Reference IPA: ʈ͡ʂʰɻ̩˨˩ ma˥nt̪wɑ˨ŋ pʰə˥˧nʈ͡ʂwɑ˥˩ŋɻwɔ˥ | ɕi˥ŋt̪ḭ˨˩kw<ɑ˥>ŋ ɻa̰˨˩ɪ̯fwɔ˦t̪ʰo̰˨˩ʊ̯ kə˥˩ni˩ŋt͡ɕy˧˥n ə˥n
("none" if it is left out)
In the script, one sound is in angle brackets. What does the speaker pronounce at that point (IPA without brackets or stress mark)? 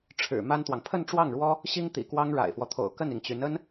ɑ˥